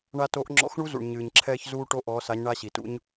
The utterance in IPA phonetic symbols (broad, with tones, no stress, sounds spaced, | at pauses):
ɳ a˧ t o˨˥ ʔ ŋ͡ǁ ɔ̰˨˥ x ɳ u˦˥ z ṵ˩ ɳ ɲ ɨː˩ ɲ ǁʰ ɛː˧ ç z uː˧ ʈ o˧ ʔ ɔː˨˥ s a˨˥ ɲ ɳ a˦˥ ɕ i˩ t ṵ˦˥ ɲ